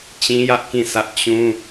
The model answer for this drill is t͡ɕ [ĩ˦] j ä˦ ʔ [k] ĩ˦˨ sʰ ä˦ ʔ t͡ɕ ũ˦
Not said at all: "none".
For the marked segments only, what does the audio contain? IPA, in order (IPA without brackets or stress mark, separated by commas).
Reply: ĩ˦, k